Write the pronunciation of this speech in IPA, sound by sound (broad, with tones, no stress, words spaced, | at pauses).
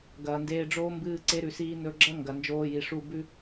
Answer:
ɡɐː˨ndeː˧ɖ͡ʐoː˦ mbɨː˧ǀe˧ɾʉ˨siː˧ nɵ˧ɡ͡ǁɐ˦ŋɡɐ˨ nd͡ʒoː˧ji˨ʂu˦˨ bʉ˦